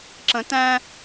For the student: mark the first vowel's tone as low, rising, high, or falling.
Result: rising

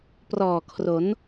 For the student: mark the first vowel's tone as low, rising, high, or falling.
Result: low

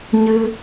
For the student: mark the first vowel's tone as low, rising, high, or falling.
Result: high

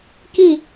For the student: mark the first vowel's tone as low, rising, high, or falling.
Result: falling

